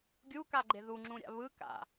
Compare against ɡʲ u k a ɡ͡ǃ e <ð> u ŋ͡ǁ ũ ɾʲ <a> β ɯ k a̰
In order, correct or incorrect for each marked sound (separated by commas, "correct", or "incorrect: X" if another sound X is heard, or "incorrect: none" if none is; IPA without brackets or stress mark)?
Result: correct, incorrect: a̰